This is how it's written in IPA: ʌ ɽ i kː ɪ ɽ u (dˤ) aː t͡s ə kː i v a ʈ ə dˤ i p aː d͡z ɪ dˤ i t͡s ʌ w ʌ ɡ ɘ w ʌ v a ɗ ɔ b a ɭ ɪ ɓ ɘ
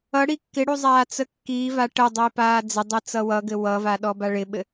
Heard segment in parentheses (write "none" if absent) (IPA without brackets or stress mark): zˤ